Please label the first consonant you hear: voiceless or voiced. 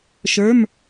voiceless